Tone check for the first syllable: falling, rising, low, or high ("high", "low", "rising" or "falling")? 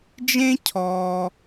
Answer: high